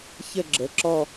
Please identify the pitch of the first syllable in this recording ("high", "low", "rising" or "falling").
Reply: falling